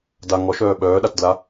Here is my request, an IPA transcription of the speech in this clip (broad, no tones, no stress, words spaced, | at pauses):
da ŋɔʃœː ɓœːɗatdla